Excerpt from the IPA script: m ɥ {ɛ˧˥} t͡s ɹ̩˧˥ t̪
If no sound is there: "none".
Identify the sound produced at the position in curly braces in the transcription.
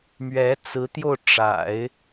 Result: ɛ˧˥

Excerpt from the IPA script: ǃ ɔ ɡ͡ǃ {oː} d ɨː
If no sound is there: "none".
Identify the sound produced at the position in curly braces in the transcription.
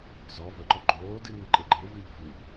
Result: oː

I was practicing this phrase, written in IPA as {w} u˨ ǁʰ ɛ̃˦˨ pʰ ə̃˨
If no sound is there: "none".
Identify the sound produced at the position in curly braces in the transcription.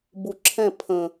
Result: b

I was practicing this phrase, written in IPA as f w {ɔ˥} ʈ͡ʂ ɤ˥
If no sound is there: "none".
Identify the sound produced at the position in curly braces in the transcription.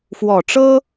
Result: ɔ˨˩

